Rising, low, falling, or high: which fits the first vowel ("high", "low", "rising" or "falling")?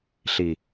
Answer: low